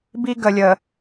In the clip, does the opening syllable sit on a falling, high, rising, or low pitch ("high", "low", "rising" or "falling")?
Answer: high